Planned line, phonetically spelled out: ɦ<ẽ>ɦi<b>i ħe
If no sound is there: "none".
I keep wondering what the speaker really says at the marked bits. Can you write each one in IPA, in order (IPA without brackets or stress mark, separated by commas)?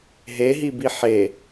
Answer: e, b